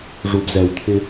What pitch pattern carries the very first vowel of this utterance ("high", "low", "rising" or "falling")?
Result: low